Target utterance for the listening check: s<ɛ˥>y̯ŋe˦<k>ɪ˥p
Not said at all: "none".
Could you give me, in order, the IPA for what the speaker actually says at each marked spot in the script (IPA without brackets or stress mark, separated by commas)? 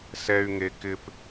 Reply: ɛ˥, k